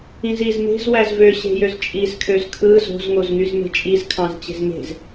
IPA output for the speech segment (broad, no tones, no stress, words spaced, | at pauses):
ĩziz me̤z wæzvøɕe̤jøz t͡ʃʼizkʰøz kʰɯ zo̤zŋoz ŋyzme̤t͡ʃʼiz kʰɑ̃zt͡ɕe̤zme̤z